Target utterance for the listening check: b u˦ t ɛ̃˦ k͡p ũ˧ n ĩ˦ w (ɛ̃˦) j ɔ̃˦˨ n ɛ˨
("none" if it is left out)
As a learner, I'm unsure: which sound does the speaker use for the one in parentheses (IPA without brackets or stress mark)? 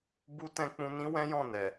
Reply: ɛ̃˦